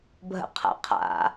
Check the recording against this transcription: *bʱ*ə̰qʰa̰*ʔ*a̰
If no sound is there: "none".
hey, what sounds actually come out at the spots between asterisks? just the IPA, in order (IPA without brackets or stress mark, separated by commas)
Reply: bʱ, qʰ